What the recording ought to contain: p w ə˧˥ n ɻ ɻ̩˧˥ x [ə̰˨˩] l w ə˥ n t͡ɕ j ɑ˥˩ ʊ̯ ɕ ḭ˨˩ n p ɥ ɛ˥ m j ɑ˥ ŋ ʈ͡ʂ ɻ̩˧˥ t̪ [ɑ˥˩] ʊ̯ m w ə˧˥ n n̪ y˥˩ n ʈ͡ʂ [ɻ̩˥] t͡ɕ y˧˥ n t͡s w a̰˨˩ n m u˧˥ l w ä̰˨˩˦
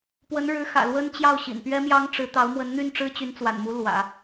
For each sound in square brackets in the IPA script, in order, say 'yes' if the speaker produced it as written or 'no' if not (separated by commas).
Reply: no, no, yes